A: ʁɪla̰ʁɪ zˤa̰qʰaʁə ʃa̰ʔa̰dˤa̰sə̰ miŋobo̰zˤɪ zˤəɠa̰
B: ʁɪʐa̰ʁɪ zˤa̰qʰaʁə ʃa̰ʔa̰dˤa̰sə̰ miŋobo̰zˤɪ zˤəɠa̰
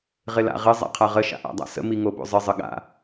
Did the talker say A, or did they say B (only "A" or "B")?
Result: A